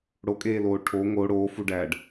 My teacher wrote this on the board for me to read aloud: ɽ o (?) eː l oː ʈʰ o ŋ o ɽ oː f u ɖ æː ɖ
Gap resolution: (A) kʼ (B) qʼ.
A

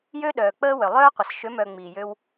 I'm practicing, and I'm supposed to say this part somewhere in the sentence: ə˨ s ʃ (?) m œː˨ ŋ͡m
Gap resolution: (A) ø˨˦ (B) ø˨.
A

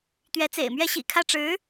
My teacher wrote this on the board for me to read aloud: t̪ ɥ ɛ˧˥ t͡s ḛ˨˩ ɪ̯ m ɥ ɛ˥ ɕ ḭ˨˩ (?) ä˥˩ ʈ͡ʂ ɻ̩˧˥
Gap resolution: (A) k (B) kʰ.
B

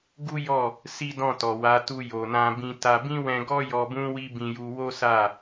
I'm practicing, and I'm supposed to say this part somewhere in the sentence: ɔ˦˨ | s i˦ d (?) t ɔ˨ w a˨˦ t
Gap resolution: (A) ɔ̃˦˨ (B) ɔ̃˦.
A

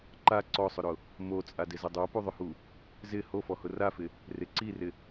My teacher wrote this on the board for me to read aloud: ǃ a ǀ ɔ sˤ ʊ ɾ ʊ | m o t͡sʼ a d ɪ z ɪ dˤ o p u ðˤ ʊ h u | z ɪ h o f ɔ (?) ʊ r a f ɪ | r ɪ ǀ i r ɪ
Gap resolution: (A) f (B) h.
B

